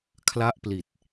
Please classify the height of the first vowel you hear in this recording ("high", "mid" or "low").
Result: low